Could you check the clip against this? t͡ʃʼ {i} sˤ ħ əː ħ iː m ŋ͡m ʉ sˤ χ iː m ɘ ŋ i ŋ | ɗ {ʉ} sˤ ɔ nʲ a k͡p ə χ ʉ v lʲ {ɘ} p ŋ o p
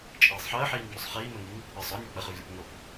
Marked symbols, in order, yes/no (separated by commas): no, no, yes